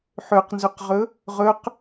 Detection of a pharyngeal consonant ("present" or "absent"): present